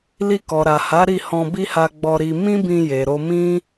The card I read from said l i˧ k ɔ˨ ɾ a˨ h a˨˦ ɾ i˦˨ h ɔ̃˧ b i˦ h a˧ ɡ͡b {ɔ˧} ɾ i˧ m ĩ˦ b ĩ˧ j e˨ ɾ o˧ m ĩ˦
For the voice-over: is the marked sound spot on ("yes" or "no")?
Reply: yes